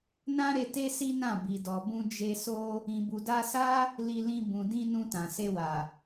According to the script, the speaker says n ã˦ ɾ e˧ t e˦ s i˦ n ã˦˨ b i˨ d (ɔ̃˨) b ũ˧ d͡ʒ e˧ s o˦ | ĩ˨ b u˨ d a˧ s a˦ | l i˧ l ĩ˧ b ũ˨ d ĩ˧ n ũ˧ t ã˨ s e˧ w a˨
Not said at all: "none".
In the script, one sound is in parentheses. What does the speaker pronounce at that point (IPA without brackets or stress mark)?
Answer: ɔ˨